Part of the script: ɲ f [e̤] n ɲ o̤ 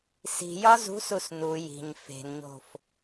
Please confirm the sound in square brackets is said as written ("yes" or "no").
yes